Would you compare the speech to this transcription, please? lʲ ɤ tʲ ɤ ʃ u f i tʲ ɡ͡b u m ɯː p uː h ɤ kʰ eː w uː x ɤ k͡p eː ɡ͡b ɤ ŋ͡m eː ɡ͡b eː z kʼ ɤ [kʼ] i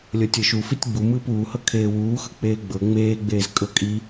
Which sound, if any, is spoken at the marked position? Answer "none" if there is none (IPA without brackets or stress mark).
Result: kʼ